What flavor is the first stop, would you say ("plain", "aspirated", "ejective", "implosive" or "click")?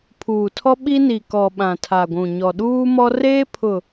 aspirated